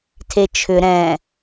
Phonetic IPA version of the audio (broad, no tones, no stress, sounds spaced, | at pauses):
tʰ e t͡ʃʰ ʏ ɾ ɛ̃